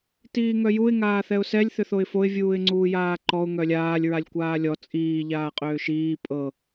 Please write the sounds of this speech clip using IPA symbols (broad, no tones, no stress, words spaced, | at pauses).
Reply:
tiːŋœjuɪ̯ ŋaːθɛʊ̯sɛlʲ θʏθoɪ̯foɪ̯ vʲuːɪ̯ŋ͡ǀuːjaːǃɔʊ̯ ŋœlʲaːlʲ ɹalʲkʷaːlʲɔ t͡sʼiː ʎaːqʼʏːʃiː pʼɤ